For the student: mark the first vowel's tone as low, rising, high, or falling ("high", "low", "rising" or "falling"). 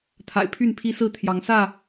low